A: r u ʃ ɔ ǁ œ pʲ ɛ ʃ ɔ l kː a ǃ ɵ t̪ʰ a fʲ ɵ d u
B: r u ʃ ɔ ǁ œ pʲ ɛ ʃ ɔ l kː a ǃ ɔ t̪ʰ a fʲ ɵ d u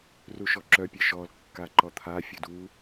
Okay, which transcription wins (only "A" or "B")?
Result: B